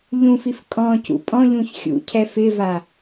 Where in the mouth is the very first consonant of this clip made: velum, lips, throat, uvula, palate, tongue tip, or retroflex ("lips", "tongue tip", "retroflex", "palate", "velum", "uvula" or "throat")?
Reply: palate